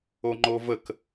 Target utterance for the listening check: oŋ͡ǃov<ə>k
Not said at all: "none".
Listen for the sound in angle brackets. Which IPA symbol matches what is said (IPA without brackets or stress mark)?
ə